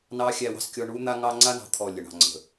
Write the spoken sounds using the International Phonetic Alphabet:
nɑ˦ xʲæ˦wɑ̤˦skʲɔ˦ ɳu˦n̪a˦ŋɑ˦ ŋ͡ǀa˦nɑ̤˨ t̪ʰɔ˦˨ lʲə˨ɳɑ̤˨ ŋ͡ǀə̤˨

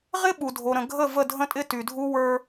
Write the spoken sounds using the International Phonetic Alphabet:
ʁɪ˦ɓu˨dʱo˨ ɾə̃˨ ɡʱə˦˨ və˦˨dʱə̃˦tʼɪ˦ ty˨dʱu˦ wə˞˦

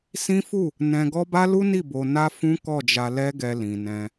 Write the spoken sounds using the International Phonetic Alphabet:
sĩ˦fu˦˨ | nɛ̃˧ɡɔ˦ ba˦lu˦ni˦˨ bo˧ na˦fũ˦ kɔ˦˨d͡ʒa˧lɛ˦ɡɛ˧ lĩ˨nɛ̃˧

